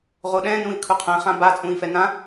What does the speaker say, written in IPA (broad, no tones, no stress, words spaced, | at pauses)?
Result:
ʁoɗɛ̃ nũi̯kʰuqʰɛ̃ χãba t͡sʼũi̯fɛnã